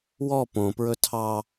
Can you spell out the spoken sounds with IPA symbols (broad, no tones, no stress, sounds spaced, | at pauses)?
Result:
w ɔ p õ p ɹ ɵ tʰ ɑ